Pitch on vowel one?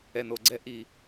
low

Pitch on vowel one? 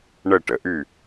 falling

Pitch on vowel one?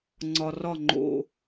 low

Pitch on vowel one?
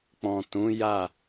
low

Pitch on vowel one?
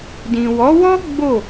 low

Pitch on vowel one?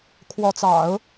rising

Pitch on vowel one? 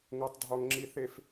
low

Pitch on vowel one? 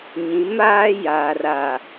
rising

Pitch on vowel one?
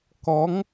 rising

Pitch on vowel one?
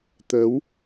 rising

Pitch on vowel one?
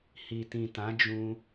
low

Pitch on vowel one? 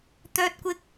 high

